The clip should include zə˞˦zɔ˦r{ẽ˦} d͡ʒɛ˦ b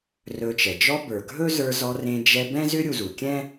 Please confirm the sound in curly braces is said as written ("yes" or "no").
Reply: yes